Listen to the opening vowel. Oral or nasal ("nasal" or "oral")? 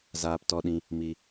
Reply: oral